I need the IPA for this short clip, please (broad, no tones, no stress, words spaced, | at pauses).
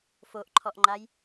foʔǃʰɔʔŋ͡ǃaj